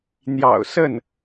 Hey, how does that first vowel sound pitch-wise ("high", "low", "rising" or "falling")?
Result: low